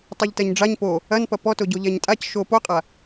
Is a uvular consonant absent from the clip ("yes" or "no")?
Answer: no